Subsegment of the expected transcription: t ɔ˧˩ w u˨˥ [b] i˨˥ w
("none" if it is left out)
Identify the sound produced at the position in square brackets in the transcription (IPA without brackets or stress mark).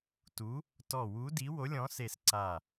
d